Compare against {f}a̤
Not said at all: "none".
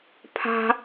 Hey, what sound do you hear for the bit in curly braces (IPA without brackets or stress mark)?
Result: pʰ